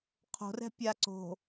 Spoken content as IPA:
qʰ o̤ r ɛ̤ pʲ a ǀ o̤

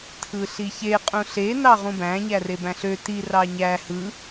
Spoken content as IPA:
tʰ ɯ ɬ i ç e qʼ ũ ɬ e n ɑ ʁ ũ b æ̃ ɲ æ r e b æ̃ ɬ ø t i r ɑ ɲ æ h ɯ

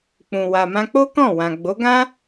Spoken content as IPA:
k͡p ũ˨ w a˨ m ã˧ k͡p o˦ k ɔ̃˦˨ w ã˨ ɡ͡b o˨˦ ɡ ã˦

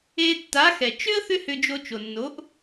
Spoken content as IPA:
e˧ tː a˩˥ x ɛ˩ t͡ʃ ʏ˥ ə̯ θ ʏ˥ h ʏ˧ d͡ʒ o˧ t͡ʃ o˩ nː o˩˥ ʔ

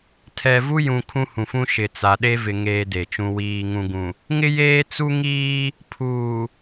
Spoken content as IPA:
tʰ ɛ˨ v u˦ j ũ˨ kʰ ũ˦ h ũ˨ f ũ˦ ʃ ɪ˨ t͡s a˨ ɗ e˦ v ɪ˨ ŋ eː˦ d e˨ t͡ʃ ũ˦ w iː˦ ŋ ũ˨ ɡ ũ˨ | ŋ ɪ˦ j eː˦ t͡s u˦ ŋ iː˦ | pʰ uː˨

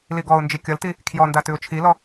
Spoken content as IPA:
l i ɡ ɔ ʊ̯ n d͡ʒ i kʲ ʌ l t i | kʰ j ɔ n d a t ʉ ʊ̯ t͡ʃʰ i l ɔ

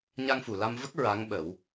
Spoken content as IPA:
ɲ a˧ ŋ f u˨˩ l a˧ m v ə˦˥ k̚ ɹ a˧˥ ŋ ɓ ə˨˩˦ w

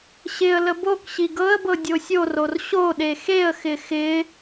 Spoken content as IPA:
ɕ ɪ ə̯ l ə b o k ɕ i ɡ ɤ ə̯ b ɤ dʲ o sʲ o r o r ɕ o ɗ e x e ə̯ x ɪ x ɪ

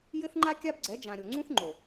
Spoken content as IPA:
j ɘ˦ θ ŋ͡ǃ a˦ kʲ a˦ b ɡ͡ǀ ɛ˨˦ d͡ʒ ã˨ ɾʲ o˨ ŋ͡ǀ ũ˦ θ ŋ͡ǃ o˨

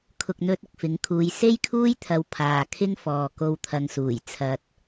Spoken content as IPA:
kʰ ʊ˨ k̚ n̪ ɵ˧ t̚ ʊ˨ k̚ f ɪ˨˥ ŋ kʰ uː˨˧ j s e˥ j kʰ uː˥ j t̪ʰ ɐ˨˧ w pʰ aː˨ kʰ ɪ˥ ŋ f ɔː˨ k o˧ w t̪ʰ ɐ˧ ŋ s uː˨˩ j t͡sʰ ɐ˧ t̚

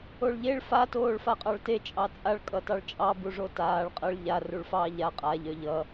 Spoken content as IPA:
o ɭ ʎ e ɭ f a t oː ɭ f a qʼ ɑ ɭ t e t͡ʃʼ ɑ t͡sʼ a ɭ kʼ ʌ t ɑ ɭ t͡ʃʼ ɑ b u ʐ o t aː ɭ qʼ ʌ ɭ ʎ a r u ɭ f ɑː ʎ a qʼ a ʎ œ ʎ ʌ

